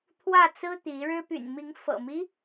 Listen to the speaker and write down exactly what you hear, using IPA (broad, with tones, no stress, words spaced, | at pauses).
t̪ʰwä˥˨t͡sɹ̩˦t̪i˨˦ɻɻ̩˦ py̰˨˩nmi˨˦ŋfɤ̰˨˩mi˦